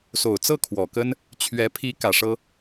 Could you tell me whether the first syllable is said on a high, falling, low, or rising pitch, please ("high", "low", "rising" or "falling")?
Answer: low